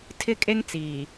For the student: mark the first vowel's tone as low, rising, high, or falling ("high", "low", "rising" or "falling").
high